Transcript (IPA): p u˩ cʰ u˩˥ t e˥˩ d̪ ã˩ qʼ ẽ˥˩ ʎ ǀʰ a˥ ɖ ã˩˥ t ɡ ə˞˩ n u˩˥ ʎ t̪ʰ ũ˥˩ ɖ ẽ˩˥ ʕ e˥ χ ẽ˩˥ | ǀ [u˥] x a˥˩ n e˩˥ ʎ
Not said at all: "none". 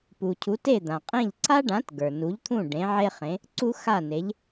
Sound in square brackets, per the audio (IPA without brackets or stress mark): u˥